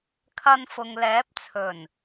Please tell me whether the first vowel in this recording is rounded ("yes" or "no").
no